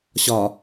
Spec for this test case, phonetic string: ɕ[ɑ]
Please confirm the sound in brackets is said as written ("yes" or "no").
no